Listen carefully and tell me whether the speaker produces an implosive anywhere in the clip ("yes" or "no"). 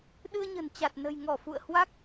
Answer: yes